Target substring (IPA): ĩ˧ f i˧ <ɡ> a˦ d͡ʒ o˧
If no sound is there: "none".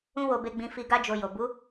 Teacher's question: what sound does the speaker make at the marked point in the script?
ɡ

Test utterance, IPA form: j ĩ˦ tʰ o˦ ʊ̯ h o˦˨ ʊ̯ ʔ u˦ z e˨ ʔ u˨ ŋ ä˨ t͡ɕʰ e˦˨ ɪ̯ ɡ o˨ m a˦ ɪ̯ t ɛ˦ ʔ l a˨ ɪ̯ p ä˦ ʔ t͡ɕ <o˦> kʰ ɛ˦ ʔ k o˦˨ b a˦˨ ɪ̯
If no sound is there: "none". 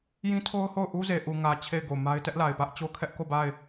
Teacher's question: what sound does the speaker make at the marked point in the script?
o˦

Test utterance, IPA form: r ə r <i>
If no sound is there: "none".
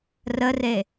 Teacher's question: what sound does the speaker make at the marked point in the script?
e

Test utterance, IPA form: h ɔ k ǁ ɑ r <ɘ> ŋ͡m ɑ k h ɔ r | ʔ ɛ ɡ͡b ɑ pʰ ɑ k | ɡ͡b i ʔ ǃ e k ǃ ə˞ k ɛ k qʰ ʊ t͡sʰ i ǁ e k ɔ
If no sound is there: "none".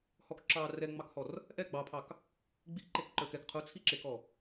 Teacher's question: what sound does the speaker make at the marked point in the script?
ɛ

